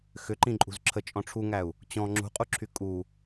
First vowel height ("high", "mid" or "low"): high